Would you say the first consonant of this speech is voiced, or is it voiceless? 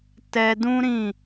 voiceless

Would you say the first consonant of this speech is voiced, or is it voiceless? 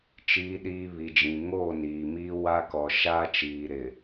voiceless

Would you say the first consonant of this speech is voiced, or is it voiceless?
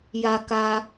voiced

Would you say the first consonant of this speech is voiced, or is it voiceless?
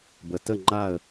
voiced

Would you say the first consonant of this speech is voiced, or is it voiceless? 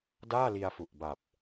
voiced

